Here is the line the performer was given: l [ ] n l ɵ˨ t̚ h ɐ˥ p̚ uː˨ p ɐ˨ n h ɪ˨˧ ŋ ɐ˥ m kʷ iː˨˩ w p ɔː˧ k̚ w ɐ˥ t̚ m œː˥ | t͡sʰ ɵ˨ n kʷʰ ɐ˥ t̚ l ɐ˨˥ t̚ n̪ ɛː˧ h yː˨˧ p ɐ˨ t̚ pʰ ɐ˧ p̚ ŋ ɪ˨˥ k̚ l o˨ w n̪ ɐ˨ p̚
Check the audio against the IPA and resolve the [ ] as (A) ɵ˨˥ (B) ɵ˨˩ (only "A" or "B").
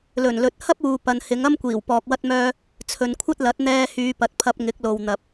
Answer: B